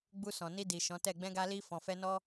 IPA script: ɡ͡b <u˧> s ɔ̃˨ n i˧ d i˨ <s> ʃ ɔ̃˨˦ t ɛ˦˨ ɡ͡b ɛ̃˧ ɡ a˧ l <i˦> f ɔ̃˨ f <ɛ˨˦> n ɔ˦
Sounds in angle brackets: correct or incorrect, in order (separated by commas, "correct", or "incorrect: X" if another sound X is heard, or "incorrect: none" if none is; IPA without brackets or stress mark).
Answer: correct, incorrect: none, incorrect: i˧, incorrect: ɛ˧